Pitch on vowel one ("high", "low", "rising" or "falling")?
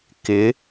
rising